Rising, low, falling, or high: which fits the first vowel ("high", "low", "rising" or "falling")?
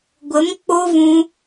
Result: rising